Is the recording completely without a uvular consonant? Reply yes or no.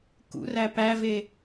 yes